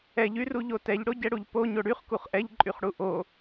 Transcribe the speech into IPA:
ɛ ʎ y r u ʎ o t ɛ ʎ ɽ o ɟ ɛ ɽ u ʎ p o ɲ o ɽ y χ k u χ ʔ ɛ ʎ ǃʼ y χ ɽ u ʔ o

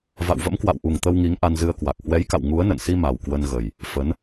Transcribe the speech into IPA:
v a̰˧˨ w v ə̰˧˥ m k w a̰˧˨ w ʔ u˨˩ ŋ t̪ ə˧ w ŋ i˨˦ ŋ ʔ a˧ n z ɨ˧ ə̯ k w a˨˩ k̚ h w ɛ˨˦ j k a̰˧˨ w ŋ u˨˦ ə̯ n ə̰˧˨ n s i˧ m a˨˩ w k w ə˧ n ɣ ə˨˩ j | f ə˨˦ n

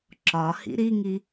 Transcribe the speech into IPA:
ǁ ɒ h ḭ ɾ i ŋ i

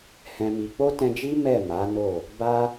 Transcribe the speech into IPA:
h ɛ̃˨ m i˨ k͡p o˧ t ɛ̃˧ d͡ʒ i˦ m ɛ˦˨ m a˨˦ n o˦˨ | b a˧

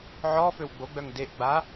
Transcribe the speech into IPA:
ʕ ɔ f ø w ɡ͡b o ɡ͡b œ ŋ d e ʔ ɡ͡b a

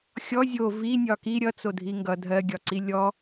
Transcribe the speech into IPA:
xʲ ɔ zʲ o v i nʲ ɒ k i ɾʲ ʌ t͡s o dʱ i ŋ ɡ ʌ dʱ ɜ ɡʲ ɒ ǀ i lʲ ɔ

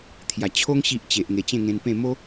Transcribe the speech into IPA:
t̪ʰ j a˨˩ t͡ɕʰ o˦ ŋ ɕ i˦ ʔ t͡ɕ e˨ ʔ ŋ e˨˩ t͡ɕ ẽ˥˧ ŋ ẽ˧ n p ẽ˥˧ m o˦

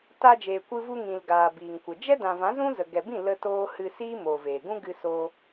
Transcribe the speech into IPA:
t aː˧ d͡ʒ eː˨ kʷ ɨ˧ v u˧ ŋ ĩ˨ l ɡ aː˨ b iː˨ ŋ kʷ ə˨ d͡ʒ ɛ˦ d ã˨ v ã˨˦ z ũ˦ z ə˨ ɡ ɛ˨ b ĩ˦˨ l ə˧ t oː˧ h ɨ˧ s iː˦ m oː˨ v eː˨ ɡ ũ˦ ɡ ɨ˧ s oː˧

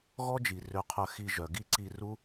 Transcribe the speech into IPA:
ɣ ɔ˦ d͡ʒ i˨ r ø˧ qʰ œ˧ x i˧ ʒ œ˨ ɡ i˦ ǀ i˧ r u˦

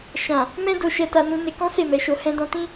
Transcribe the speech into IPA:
ʃ ã˨ | m ɛ̃˦ d o˧ ʃ ɛ˧ t a˧ n ũ˧ n e˧ k ɔ̃˦ s e˦˨ m ɛ˨˦ ʃ o˧ h ɛ̃˧ d ɔ̃˧ t ĩ˦

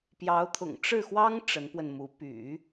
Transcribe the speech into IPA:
p j ɑ˧˥ ʊ̯ t̪ʰ ʊ̰˨˩ ŋ ʈ͡ʂ ɻ̩˥˩ x w ɑ˥ ŋ ʈ͡ʂ ə˧˥ n p w ə˧ n m u˧˥ p y̰˨˩˦

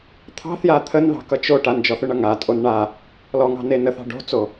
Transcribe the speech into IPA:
t̪ʰ ɑ̤ θ j a t̪ʰ ə n ð ɑ̤ k ʌ t͡ʃ o ʈ a n d͡ʒ ɔ θ ʏ ɳ ʌ ŋ a tʼ o n ɳ a | l ɔ ŋ ɑ̤ n e n ə θ ɑ̤ ɖ o̤ t͡s o

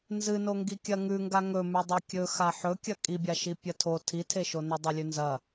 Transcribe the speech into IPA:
n z ɨ n o ŋ ɡ i kʲ ɐ ŋ ʉ ŋ ɡ a ŋ ɵ m ʉ dˤ ɐ kʲ ɵ x a ħ ɵ kʲ ɐ kʼ i bʲ a ʃ i pʲ ɐ tʰ o tʰ i tʰ e ʃ o n ɵ dˤ ɵ lʲ ʉ n z ɐ

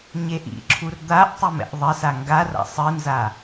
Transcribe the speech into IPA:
ɲ e ʔ ḭ ǁʰ u r d̪ a ʔ tˤ ɨ m ɛ̰ ʔ ðˤ ɘ s a ŋ ɡ a r a̰ sˤ ɨ n z a

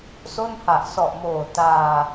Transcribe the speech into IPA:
s o˥˩ n h a˨˩ ʔ s ɔ˨˩ ʔ m oː˨˩ t aː˧

